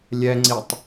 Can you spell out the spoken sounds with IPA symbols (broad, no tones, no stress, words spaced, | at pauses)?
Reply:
lʲɛŋ͡ǀitˤ